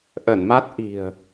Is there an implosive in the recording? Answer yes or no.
no